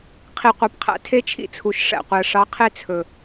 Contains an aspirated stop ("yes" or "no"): yes